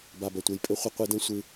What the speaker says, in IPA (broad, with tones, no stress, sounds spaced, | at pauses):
b a˨ b ɐ˨ tʷ e˨ j pʼ ɘ˧ χʷ ɐ˦ qʷ ɨ˧ d ɐ̃˦ sʷ ɨ˧